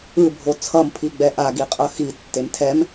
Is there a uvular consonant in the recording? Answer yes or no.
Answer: yes